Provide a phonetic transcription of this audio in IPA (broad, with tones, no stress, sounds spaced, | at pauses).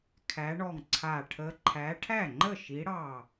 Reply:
kʰ æ˨˦ ɳ ɔ˧˩ ŋ ǀʰ a˧˩ ʈʰ ə˨˦ ǃʰ æ˨˦ ʈʰ æ˥˩ ŋ͡ǃ ə˥˩ ʃ i˨˦ ɽ ɑ˧˩